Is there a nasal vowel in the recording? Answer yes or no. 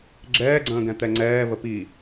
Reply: yes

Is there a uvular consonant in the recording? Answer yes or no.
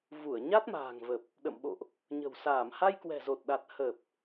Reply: no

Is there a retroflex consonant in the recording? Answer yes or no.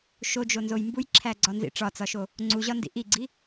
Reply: yes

